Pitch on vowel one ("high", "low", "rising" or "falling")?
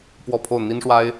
falling